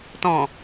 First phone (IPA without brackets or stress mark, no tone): t